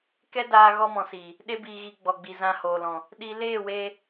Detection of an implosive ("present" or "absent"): present